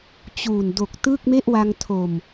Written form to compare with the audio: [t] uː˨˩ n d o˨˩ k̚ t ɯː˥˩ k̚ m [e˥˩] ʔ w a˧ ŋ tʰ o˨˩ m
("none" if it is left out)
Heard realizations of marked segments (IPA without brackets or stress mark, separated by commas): t͡ɕ, e˥˩